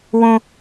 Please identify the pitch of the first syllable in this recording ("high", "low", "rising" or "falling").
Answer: high